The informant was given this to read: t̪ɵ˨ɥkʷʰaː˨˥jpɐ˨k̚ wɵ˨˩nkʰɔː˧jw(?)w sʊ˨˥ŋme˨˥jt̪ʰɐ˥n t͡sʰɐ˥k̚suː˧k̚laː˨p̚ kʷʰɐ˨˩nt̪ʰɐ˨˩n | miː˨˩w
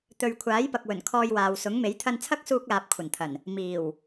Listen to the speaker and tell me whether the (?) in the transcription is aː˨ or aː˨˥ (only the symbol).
aː˨